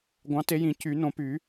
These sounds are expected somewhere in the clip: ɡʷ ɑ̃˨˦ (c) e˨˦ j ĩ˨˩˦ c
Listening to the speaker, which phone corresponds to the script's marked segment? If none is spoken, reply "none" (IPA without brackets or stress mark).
t